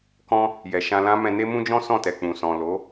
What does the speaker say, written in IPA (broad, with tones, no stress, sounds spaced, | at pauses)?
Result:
k ɔ̃˦ | j ɛ˨ ʃ ã˧ l ã˦ m ɛ̃˧ n e˦ m ũ˦ d͡ʒ ɔ̃˦ s ɔ̃˦˨ t ɛ˨ k͡p ũ˨ s ɔ̃˨ l o˨˦